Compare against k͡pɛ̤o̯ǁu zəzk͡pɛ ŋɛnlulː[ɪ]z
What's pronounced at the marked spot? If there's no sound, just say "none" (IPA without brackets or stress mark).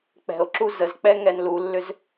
ʏ